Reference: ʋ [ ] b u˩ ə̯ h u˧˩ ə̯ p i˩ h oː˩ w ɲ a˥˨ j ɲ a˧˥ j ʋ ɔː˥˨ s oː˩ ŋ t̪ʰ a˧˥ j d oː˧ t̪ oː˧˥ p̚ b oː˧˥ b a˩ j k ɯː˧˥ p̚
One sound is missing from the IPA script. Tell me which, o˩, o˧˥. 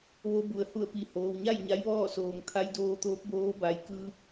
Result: o˧˥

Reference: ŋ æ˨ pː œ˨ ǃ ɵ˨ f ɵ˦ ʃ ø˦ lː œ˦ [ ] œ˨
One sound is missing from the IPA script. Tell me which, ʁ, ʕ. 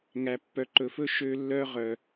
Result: ʁ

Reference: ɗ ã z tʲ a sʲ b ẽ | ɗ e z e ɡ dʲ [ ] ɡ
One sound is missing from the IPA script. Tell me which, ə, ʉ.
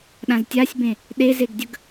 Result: ə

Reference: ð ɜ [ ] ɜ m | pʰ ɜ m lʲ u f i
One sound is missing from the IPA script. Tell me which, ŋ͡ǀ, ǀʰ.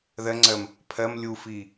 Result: ŋ͡ǀ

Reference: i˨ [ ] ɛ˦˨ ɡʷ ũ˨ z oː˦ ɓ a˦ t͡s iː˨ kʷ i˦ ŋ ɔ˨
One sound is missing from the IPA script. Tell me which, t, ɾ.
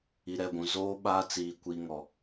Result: ɾ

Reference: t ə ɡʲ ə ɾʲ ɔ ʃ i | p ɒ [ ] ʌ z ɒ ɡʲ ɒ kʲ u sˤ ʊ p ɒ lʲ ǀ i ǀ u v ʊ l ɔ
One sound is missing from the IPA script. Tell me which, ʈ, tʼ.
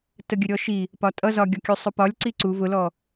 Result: tʼ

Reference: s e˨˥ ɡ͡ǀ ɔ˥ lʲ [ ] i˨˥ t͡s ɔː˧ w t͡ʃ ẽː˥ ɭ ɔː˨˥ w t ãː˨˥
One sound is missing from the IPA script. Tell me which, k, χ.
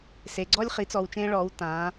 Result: χ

